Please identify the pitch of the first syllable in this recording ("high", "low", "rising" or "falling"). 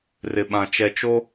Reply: low